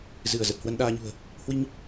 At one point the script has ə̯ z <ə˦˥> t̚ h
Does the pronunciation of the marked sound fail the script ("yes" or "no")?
yes